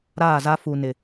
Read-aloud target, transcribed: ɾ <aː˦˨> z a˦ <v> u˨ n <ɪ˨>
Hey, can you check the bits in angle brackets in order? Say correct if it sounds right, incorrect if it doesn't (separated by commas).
correct, incorrect, correct